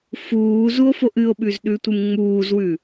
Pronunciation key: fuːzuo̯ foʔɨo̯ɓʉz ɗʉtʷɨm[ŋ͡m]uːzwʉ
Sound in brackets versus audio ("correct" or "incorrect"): correct